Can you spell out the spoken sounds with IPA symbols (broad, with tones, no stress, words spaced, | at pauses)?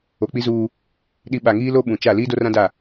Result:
o˨k͡pi˦zuː˦ | ɗi˨ ɓa˨ŋiː˦lo˦ ɓũ˨ t͡ʃa˦˨ liː˦do˦rã˦da˦˨